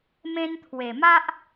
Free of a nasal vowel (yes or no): no